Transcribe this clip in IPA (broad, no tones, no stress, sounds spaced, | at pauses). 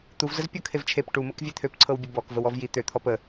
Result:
t̪ u v z ə z pʲ ɤ kʰ e v t͡ʃʰ e p ʈ u m ɤ k vʲ e t̪ʰ ø p ǀʰ ɤ w bʲ ə b ɔ k v ə w ɔ v j i t̪ ø t̪ʰ ɔ p ə